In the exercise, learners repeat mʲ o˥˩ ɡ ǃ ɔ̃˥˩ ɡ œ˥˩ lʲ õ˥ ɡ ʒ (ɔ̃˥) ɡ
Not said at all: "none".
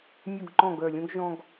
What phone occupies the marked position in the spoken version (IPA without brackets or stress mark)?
ɔ̃˥